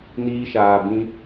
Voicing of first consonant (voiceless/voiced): voiced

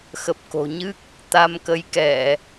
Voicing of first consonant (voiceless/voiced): voiceless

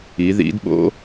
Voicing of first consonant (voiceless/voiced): voiced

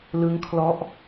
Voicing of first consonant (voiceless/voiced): voiced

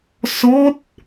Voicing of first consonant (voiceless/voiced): voiceless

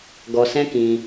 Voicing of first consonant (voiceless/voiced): voiced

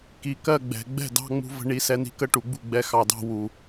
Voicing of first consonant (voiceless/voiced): voiceless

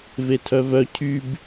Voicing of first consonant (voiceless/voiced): voiced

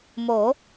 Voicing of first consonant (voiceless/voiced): voiced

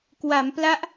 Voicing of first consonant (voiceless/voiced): voiceless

